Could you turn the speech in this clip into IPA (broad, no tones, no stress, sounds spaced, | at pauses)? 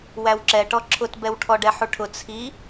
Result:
w æ w ǁ ɛ ʈ ɔ ǁʰ ʊ t b ɛ w ʈʰ ɔ ɖ ɛ ħ u ʈʰ ʊ t͡sʰ i